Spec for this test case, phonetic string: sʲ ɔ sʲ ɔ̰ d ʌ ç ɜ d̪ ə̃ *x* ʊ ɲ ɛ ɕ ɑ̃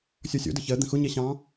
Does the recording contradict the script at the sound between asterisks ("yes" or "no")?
no